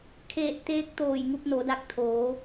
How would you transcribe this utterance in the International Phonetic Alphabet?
kʰ eː˧˩ t̚ t̪ eː˧˥ k̚ t̪ oː˧˩ j ŋ u˧ p̚ n o˩˧ d a˧ k̚ t̪ʰ oː˩˧

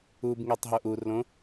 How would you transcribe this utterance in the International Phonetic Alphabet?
u b ŋ e tˤ ɦ o ʔ u r l õ

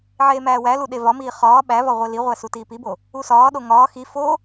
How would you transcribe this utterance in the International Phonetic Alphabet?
ʕ eː m æː w æ l u ɗ e v ɒ m iː χ ɒː ɓ æ v ɒ ʁʷ e l i ʁʷ æ s u t iː p i b o | u s ɒː ɗ o ŋ ɒː x i f o

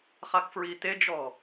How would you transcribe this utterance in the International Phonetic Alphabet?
χ a k f ɹ i t e d͡ʒ ɔ

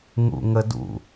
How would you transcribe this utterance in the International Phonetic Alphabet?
ŋ ṵ ŋ ə d ṵ

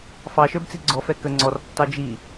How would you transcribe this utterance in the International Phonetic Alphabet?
f ɑ ʃ ə˞ b t͡s i ɡ͡ǀ ɔ f ɛ k ə ŋ͡ǀ ɔ r tː ɑ d͡ʒ i

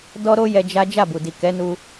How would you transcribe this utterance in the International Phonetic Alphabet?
d ɔ˦ ɾ o˦ j ɛ˧ d͡ʒ a˦ d͡ʒ a˦˨ b u˨ d i˨ k ɛ˨˦ n u˧

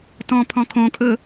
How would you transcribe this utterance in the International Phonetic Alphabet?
t ɔ̃ pʰ ɔ̃ kʰ õ kʼ ɵ

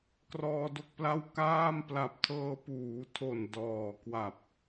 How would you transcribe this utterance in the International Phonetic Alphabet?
k r ɔː˧ d o˥˩ k̚ p l a˥˩ w k aː˥˩ m p l a˨˩ p̚ tʰ ɤː˧ p uː˩˦ tʰ o˨˩ n d ɔː˨˩ k w a˨˩ p̚

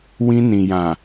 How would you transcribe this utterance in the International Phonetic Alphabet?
w ĩ˧ n ĩ˨ j ã˨

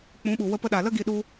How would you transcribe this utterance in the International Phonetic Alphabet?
k͡p ũ˨˦ ɓ u˨ w ə˧ p ə˧ ɗ a˨ l ə˦ ɡ i˧ ɗ u˧

